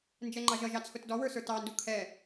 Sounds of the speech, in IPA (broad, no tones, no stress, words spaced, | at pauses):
nd͡ʒɛŋ͡ǃɑʒʌʒɑ t͡sʰʊtdɔwə˞ sə˞tɑndu kʰɛ